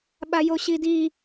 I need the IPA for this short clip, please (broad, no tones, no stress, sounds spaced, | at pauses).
ɓ a j o ɕ i d i